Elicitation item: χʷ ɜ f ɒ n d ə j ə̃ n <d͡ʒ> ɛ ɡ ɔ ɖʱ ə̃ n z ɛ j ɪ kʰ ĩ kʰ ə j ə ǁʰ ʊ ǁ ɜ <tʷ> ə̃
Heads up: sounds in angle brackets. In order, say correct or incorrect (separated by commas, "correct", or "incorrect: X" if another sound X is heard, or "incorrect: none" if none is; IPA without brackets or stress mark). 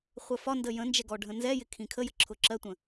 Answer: correct, correct